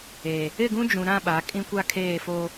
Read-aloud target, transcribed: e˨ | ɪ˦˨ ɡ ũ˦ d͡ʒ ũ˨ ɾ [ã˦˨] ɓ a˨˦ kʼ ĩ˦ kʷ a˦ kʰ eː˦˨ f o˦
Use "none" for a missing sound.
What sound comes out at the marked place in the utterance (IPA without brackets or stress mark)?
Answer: ã˦˨